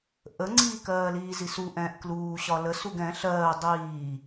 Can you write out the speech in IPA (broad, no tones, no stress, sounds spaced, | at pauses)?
ʔ ə ŋ͡ǀ iː k ɜː l iː z i s u ʔ ɛ̃ ʔ k l uː ɕ ɒ l ə s u ɡ ɛ̃ ɬ ɜː dˤ iː